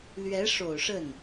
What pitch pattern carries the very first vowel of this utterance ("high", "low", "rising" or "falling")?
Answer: rising